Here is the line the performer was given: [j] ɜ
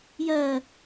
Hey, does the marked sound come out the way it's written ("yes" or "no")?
yes